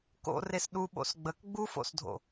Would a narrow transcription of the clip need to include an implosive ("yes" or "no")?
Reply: yes